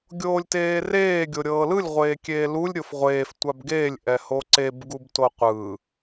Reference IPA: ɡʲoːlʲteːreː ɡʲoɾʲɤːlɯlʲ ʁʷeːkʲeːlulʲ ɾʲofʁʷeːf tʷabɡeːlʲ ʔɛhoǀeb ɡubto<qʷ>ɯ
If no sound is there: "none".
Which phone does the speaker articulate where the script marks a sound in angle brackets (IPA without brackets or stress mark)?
qʷ